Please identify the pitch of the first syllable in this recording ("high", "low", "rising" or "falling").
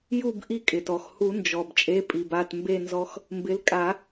falling